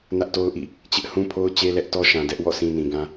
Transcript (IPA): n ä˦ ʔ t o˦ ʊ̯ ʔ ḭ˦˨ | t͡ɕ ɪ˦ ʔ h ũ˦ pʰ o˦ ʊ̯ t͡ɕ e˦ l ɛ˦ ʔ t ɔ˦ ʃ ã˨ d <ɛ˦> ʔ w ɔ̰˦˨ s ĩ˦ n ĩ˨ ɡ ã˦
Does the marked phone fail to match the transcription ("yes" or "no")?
no